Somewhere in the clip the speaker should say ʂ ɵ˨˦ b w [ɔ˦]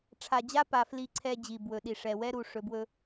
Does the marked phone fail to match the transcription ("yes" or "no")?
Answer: yes